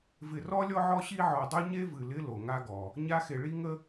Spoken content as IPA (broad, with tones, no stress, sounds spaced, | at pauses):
v ɪ˨ r ɔ˥ lʲ ɔ˦ ʕ ɔ˦ ɕ i˦ ʕ ɔ˨ dˤ o˥ ɲ e˥ v ɨ˨ l ɪ˦ l o˩ ŋ a˦ ɡ ɔ˩ | ɲ a˦ x e˨ ɭ i˥ ŋ ə˥